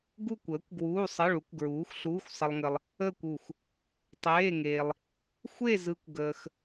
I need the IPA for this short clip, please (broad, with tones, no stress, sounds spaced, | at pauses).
ɡ u˥˧ kʷ əː˨˥ kʷ ɡ w uː˧˥˧ sˤ ə˧˥˧ ɭ u˨˥ kʷ ɡ ɹ uː˨˥ xʷ ɬ uː˧˥˧ xʷ sˤ ə˧ lˠ ŋ ə˧ lˠ | əː˥˧ kʷ u˧˩ x | tˤ eː˧˥˧ ŋ eː˧ lˠ | xʷ e˥˧ z ɯ˧ kʷ ɡ əː˧ x